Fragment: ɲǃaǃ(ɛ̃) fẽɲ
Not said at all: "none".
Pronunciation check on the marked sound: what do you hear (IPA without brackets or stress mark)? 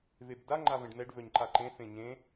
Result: ẽ